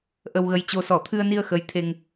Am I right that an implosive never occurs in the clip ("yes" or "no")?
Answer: yes